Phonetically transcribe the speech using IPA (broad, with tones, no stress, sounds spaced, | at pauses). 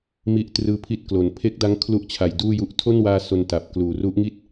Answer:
m i˦˥ ʔ t r ɯː˧ pʰ i˦˥ t̚ k l o˩˦ n pʰ e˦˥ k̚ d a˦˥ ŋ kʰ l u˥˩ ʔ t͡ɕʰ a˨˩ j d uː˥˩ j u˦˥ ʔ tʰ o˥˩ n w aː˧ s o˧ n t a˨˩ p̚ k l uː˨˩ r u˦˥ ʔ ŋ i˥˩ t̚